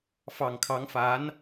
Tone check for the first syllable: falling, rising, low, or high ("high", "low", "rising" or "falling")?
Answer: low